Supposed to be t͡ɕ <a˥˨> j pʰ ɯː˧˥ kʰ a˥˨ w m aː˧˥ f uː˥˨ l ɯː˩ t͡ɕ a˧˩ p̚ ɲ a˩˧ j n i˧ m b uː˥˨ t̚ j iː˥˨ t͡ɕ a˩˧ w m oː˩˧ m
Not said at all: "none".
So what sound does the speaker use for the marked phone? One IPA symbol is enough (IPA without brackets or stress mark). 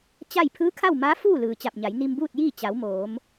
a˥˨